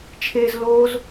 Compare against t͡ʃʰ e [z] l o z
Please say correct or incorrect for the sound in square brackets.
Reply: correct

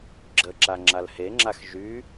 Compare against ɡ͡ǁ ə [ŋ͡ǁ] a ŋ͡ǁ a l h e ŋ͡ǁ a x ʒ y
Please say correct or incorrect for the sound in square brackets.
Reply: incorrect: ǁ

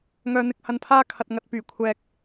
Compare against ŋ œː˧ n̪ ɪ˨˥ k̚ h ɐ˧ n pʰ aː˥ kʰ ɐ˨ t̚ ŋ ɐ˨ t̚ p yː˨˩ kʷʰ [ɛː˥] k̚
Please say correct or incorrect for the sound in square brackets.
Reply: incorrect: ɛː˨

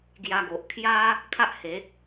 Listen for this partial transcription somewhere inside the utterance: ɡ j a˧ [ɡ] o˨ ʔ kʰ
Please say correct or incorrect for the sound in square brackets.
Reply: correct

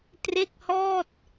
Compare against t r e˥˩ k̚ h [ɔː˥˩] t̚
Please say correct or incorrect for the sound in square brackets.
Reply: correct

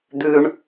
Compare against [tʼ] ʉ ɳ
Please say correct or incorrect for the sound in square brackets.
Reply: incorrect: d̪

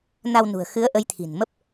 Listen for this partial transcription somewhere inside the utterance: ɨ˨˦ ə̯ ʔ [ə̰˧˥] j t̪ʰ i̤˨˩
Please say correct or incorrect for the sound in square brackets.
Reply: incorrect: ə˨˦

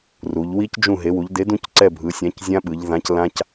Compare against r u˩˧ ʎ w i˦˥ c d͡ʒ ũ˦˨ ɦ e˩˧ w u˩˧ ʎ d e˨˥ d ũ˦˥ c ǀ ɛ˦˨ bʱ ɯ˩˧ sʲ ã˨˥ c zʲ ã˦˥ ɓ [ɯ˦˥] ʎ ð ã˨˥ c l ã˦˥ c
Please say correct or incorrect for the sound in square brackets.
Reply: incorrect: ɯ˩˧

